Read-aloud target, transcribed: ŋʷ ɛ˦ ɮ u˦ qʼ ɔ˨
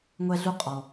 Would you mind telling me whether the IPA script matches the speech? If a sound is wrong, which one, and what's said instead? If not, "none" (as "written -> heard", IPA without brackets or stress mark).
none